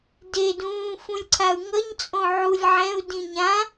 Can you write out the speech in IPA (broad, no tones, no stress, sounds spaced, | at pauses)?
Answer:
d e d ũː f ũ lʲ ǀʰ a u̯ ŋ ʌ ɲ t͡sʼ õ ʕ u lʲ ʕ ɛ̃ u̯ d ĩ ɲ ã